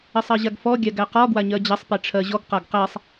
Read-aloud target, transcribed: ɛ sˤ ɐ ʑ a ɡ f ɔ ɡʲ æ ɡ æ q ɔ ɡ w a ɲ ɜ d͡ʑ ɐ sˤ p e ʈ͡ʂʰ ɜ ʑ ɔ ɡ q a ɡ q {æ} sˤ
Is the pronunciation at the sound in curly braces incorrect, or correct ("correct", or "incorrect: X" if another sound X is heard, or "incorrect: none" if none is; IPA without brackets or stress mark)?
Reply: correct